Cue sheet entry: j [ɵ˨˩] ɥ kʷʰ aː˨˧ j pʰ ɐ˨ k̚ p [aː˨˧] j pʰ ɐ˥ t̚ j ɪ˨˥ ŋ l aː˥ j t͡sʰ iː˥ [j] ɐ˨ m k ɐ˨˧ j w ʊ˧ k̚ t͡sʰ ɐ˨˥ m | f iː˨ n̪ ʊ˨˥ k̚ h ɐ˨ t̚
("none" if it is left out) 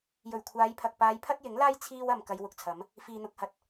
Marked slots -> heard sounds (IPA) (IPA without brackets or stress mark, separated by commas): ɵ˨˩, aː˨˧, w